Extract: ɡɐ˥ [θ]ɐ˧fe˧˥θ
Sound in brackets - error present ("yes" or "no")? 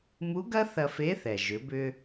no